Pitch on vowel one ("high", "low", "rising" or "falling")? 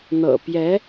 low